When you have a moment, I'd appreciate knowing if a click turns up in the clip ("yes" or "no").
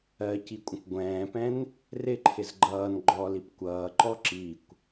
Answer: yes